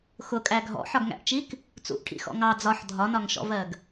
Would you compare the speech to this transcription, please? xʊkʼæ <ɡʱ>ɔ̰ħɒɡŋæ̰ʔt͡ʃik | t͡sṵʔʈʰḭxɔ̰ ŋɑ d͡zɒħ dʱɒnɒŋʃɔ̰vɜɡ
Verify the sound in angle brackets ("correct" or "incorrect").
correct